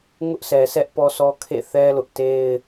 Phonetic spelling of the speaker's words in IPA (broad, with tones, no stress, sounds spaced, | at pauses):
ŋ ʊ˦ ʔ sʰ ɛ˨ sʰ ɛ˦ ʔ p ɔ˦ sʰ ɔ˦ kʰ ḛ˦˨ θ ɛ˦ l ʊ˦ ʔ t e˦ ɪ̯